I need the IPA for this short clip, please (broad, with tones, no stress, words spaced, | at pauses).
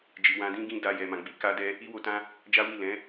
d͡ʒi˨wã˧dĩ˦ɡĩ˦ da˧jɛ˨ mã˨ɡ͡bi˧ka˦dɛ˦ | i˦wo˧tã˦ | d͡ʒa˦wi˦˨ lɛ̃˨˦